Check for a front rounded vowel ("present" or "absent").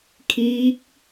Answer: absent